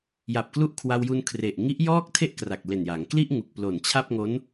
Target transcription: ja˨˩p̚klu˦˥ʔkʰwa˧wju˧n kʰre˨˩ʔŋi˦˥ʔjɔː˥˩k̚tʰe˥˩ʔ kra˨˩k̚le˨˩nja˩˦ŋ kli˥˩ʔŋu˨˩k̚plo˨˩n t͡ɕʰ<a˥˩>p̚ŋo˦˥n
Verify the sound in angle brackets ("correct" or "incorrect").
correct